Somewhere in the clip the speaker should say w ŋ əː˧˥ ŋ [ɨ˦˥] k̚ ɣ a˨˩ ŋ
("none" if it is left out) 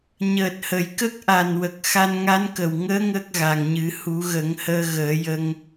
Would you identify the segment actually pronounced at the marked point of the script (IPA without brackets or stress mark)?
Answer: ə˦˥